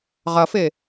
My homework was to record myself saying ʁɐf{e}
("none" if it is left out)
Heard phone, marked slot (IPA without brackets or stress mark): e